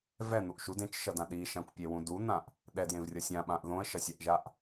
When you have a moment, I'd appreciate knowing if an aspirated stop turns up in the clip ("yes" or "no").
no